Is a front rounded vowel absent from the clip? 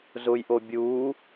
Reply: yes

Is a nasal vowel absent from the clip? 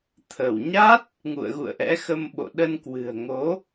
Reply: yes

